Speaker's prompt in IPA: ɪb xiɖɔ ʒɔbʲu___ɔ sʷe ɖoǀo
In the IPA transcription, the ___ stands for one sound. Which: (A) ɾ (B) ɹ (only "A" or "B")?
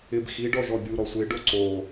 A